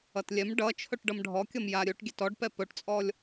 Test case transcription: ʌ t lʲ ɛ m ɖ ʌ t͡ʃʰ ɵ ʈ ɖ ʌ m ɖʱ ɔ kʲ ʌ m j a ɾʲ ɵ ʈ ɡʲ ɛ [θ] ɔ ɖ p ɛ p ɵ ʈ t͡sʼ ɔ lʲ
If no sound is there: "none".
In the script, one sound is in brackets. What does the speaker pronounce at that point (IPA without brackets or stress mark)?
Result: t